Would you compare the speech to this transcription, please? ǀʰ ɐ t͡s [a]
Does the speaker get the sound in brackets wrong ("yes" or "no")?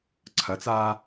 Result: yes